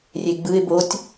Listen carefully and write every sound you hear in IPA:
rʲeɡ͡bɯɪ̯ botʲ

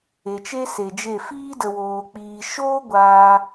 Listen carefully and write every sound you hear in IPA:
e˨t͡ʃe˦se˨d͡ʒe˦˨ fiː˦də˨woː˨k͡piː˨ ʃoː˦ ɡʷaː˧

